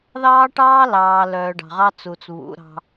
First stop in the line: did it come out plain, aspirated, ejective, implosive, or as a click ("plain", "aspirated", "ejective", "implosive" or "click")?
plain